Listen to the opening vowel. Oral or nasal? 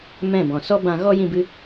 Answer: nasal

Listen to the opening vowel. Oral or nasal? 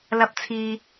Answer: oral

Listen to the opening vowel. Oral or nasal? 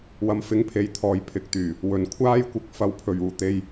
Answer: oral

